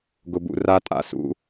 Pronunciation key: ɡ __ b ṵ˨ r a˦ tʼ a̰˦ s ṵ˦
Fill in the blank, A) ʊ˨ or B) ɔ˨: A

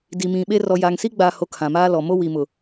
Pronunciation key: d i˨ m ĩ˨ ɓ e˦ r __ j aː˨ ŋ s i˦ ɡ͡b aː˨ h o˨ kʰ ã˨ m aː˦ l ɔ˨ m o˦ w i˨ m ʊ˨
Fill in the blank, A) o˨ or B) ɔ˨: B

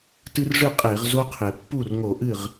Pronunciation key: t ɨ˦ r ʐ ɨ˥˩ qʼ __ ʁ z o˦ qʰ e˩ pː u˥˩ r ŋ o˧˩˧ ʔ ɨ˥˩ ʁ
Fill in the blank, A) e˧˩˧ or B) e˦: A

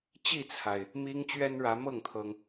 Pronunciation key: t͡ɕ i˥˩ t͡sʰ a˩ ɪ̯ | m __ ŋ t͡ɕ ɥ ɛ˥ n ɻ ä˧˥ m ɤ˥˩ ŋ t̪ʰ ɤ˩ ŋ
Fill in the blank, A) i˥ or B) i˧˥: A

